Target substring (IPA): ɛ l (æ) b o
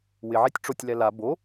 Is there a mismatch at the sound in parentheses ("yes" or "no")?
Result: yes